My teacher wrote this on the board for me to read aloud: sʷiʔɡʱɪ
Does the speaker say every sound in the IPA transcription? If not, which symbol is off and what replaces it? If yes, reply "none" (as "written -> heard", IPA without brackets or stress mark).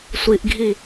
ɪ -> i